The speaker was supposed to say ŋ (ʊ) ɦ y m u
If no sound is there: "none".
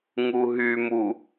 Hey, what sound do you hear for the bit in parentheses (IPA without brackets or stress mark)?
u